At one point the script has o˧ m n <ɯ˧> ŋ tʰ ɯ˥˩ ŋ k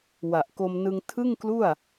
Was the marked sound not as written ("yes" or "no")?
no